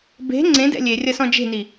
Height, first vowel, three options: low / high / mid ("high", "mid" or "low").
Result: mid